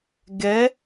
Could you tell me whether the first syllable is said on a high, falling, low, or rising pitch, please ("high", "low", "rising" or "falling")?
rising